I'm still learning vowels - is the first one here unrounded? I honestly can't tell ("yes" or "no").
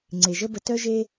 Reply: yes